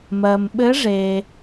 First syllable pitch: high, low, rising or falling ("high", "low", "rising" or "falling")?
low